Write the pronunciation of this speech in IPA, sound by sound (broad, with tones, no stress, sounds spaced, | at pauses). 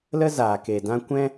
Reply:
l ə˦ z aː˨ k e˨ d ã˦ kʷ ɛ̃˦